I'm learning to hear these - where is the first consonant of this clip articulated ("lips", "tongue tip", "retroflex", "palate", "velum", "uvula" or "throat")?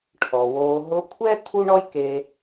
retroflex